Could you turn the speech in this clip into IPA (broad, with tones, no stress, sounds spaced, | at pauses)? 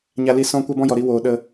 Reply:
ɲ a˧ l i˧ s ɔ̃˧ kʷ ɛ˦ b ɔ̃˦ j ɔ˨ ɾ i˧ w oː˨ ɗ ə˧